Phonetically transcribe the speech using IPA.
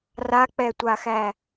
rak͡pɛtʷaxæ

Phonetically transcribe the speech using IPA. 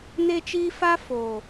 ne˦t͡ʃiː˦ fa˦ foː˨

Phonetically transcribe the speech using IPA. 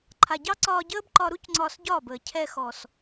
ǃʰa˨ɟɑ˦ ǀɒː˧ɟəː˦bǃɒ˧ɾu˦c ŋ͡ǀɒː˧sɟɒː˦˨bəː˨ cʰɛ˧xɔ˨s

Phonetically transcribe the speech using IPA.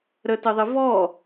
ɾətɪðˤɪ vɔ

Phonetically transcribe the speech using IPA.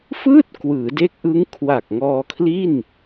fɯː˥˩t̚ kwɯː˩˦de˦˥k̚ʔɯ˦˥ŋ kʰwa˨˩k̚ŋɔː˧ kʰli˥˩n

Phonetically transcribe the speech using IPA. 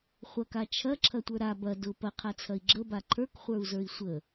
χʷɐkat͡ʃʰɐ ǁʰɐtʷə˞ɾa bɐ dʊ pɐqʰat͡sʰɐi̯ ɡ͡ǁəba ǃʰə˞kχʷə˞u̯zə˞i̯ sʷə

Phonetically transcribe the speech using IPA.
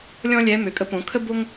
lʲɔ̃˥lʲɛ˧˥ mø˩˧kʼə˧˥põ˩˧kʰə˥ bo˥ŋ

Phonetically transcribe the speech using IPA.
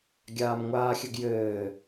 ɡʲaːmŋʷaːxʲɘɡjɘː

